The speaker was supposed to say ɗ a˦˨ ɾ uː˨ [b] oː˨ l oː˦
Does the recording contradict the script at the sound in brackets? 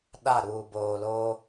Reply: no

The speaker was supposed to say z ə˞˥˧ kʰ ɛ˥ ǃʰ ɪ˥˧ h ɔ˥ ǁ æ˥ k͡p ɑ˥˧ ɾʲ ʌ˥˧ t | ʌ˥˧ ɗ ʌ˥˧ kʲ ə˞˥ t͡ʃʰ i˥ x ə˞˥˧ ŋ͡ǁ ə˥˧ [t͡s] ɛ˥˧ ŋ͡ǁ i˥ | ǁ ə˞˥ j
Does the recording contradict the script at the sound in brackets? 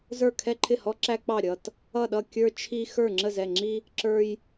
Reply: yes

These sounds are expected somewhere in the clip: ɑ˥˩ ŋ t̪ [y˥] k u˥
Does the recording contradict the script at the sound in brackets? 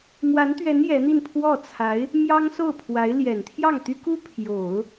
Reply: no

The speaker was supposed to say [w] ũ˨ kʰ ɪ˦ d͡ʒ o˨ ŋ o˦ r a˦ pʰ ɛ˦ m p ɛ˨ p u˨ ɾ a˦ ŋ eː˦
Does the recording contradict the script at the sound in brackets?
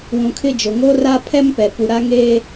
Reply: no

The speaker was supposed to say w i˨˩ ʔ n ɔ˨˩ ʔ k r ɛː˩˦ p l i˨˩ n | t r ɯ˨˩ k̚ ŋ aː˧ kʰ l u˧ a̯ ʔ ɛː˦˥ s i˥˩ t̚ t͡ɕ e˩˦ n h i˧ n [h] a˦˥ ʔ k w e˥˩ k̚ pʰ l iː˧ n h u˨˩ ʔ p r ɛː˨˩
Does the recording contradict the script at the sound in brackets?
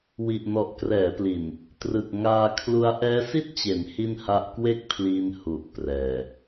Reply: no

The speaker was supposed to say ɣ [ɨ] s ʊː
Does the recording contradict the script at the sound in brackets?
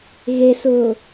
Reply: yes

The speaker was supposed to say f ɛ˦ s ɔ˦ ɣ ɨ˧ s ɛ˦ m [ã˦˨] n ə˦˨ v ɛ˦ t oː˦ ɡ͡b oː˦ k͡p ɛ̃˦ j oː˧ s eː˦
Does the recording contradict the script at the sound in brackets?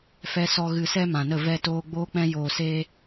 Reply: yes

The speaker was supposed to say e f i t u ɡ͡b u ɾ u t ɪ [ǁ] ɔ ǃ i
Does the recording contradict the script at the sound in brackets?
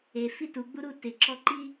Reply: no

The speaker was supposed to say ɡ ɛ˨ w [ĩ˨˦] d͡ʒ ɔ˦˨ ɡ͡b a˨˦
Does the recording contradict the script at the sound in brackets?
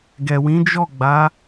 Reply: no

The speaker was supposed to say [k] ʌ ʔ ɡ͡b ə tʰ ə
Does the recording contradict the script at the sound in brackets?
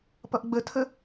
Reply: yes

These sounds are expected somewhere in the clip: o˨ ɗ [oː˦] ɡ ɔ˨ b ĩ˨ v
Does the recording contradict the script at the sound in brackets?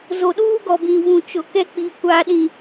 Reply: yes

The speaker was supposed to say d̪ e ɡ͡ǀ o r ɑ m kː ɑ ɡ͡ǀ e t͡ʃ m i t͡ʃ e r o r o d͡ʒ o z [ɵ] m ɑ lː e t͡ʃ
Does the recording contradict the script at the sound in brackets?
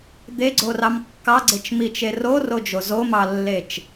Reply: yes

